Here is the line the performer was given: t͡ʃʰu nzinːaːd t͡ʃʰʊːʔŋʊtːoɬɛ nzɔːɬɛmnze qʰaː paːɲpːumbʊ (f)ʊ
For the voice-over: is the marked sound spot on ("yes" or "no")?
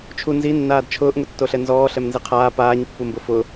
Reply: yes